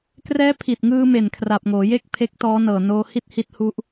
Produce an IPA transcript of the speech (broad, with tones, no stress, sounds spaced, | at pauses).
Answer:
k r ɛː˦˥ pʰ i˨˩ t̚ ŋ ɯː˧ m e˨˩ n kʰ r a˨˩ p̚ ŋ oː˩˦ j e˥˩ k̚ pʰ e˦˥ k̚ t ɔː˦˥ n ɤː˨˩ n oː˧ h i˥˩ t̚ h i˦˥ t̚ h u˦˥ ʔ